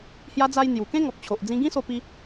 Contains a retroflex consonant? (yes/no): no